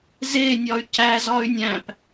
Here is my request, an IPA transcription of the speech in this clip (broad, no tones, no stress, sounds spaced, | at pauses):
z e nʲ ɒ y̯ c æ z ɒ y̯ nʲ æ̃ p